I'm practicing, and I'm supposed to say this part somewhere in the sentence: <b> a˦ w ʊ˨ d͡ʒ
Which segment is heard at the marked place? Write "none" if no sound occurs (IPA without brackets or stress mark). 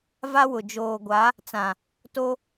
v